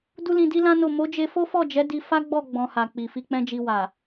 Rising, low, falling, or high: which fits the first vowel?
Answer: high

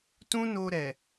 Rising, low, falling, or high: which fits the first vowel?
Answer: high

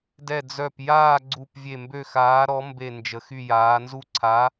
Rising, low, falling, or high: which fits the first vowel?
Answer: falling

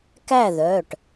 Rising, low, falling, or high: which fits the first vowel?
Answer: falling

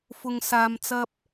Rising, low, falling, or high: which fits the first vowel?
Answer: low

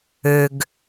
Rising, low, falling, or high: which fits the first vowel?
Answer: low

